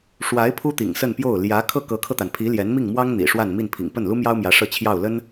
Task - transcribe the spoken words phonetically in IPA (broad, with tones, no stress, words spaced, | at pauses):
ʂwa˧˥ɪ̯ pʰu˥t̪ḭ˨˩ŋsə˥˧npjo˥˩ʊ̯ ljä˧˥ kʰɤ˥˩kɤ˧˥kʰɤ˧t̪a˩n pʰi˧˥ljɛ˧˥nmi˥˩ŋmwɑ˥ŋ n̪ḭ˨˩ʂwa˥˧n mi˥˩npʰḭ˨˩ŋ pə˥˩nlu˥mjɑ˥ʊ̯mjä˧˥ ʂɤ˥˧t͡ɕʰjɑ˥˩ʊ̯lə˥n